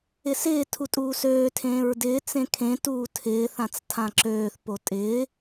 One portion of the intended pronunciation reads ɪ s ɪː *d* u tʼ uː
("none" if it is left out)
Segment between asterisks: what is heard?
tʰ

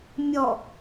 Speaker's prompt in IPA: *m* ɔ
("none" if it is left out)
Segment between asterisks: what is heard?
mʲ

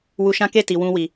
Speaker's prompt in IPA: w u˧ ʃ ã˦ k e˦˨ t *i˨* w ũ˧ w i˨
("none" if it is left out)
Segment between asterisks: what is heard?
i˨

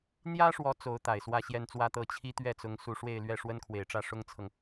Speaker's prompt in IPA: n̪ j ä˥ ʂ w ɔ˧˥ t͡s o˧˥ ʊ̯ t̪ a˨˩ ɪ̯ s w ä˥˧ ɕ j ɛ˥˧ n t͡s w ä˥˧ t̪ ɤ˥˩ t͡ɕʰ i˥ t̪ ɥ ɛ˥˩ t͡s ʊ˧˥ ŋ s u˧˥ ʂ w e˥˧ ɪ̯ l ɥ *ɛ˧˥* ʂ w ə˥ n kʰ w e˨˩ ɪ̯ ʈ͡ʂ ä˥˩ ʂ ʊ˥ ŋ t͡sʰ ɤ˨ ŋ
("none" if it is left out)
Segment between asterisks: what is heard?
ɛ˥˩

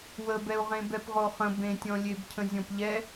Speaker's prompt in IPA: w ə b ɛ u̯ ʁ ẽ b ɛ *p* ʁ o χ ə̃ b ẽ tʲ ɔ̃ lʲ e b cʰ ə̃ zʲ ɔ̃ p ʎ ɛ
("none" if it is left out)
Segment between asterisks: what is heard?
p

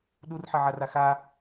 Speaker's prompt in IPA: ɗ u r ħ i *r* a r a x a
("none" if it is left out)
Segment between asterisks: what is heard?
ʕ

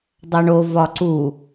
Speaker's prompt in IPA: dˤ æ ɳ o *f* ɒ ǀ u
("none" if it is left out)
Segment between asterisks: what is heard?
v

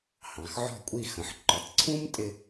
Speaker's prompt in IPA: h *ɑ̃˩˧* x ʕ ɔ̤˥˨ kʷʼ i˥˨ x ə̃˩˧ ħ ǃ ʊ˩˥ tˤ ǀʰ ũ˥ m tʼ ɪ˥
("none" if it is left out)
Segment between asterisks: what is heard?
ɑ̃˩˧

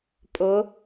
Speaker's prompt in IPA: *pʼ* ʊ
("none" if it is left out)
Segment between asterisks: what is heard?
pʼ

